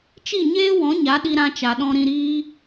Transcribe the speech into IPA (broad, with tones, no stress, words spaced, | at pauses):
t͡ʃi˦˨ɲeː˦wɔ̃˨˦ ɲa˨˦ ɗi˧ɾã˧ t͡ʃa˨ɗɔ̃˧ ɾĩ˧ɾiː˦